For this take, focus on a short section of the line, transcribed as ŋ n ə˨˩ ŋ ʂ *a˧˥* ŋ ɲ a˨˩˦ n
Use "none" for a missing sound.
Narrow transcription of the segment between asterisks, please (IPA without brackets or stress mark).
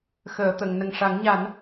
a˨˩˦